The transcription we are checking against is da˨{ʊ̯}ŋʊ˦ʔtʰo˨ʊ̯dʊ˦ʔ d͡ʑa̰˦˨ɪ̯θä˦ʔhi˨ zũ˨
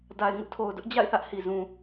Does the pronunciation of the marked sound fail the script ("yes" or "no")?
yes